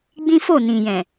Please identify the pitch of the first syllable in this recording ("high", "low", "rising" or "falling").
high